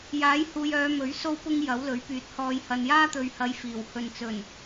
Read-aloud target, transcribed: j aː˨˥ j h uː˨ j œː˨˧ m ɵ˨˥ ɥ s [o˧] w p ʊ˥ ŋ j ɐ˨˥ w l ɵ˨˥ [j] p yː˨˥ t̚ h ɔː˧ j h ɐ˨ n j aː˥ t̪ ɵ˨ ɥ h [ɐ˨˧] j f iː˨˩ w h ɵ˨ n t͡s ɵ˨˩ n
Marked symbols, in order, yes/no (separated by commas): no, no, yes